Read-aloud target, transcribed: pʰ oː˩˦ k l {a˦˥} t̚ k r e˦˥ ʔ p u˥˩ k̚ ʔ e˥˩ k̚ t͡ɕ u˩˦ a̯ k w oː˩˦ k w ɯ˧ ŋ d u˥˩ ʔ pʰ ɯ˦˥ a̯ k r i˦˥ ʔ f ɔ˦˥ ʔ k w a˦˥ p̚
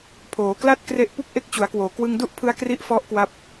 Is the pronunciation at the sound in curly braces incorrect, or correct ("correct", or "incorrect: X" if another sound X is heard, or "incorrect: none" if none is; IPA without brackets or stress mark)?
incorrect: a˥˩